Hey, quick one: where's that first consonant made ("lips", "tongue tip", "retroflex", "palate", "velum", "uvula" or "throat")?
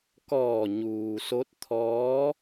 velum